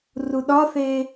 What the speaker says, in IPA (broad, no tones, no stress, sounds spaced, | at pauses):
r u ɗ ɒ θ eː